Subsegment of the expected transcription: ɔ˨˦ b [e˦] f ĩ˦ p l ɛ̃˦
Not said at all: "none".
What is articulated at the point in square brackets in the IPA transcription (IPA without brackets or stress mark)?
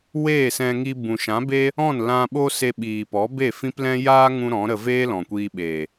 e˦˨